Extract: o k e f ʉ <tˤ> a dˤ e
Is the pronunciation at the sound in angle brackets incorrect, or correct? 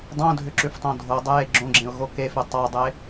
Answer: correct